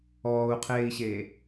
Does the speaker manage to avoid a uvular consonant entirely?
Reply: no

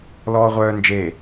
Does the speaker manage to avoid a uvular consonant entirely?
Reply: no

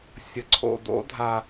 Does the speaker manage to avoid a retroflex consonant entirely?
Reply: yes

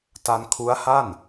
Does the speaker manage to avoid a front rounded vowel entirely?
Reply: yes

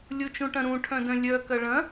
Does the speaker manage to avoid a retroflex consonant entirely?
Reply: no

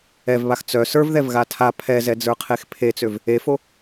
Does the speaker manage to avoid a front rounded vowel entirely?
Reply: no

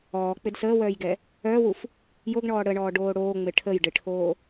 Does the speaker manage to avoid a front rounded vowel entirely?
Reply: no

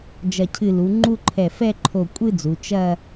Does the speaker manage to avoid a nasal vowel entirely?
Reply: yes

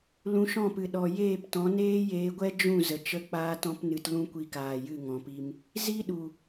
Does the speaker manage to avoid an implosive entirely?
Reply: no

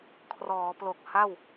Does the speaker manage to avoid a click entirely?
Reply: yes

